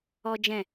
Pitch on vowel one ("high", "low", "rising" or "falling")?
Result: high